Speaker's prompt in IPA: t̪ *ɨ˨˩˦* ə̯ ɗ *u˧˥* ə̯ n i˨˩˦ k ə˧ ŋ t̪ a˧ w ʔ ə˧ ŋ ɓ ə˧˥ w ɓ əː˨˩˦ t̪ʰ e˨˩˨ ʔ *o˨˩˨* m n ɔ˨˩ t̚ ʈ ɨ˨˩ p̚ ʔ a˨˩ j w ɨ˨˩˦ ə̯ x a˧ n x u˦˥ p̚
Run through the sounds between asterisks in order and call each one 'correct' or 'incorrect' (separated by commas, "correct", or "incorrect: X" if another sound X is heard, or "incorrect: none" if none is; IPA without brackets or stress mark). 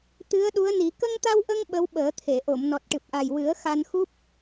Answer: incorrect: ɨ˧˥, correct, correct